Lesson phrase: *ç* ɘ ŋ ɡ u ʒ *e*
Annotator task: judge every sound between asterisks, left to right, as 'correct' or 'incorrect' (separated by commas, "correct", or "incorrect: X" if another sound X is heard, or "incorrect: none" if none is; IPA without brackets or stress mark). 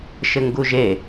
incorrect: ʃ, correct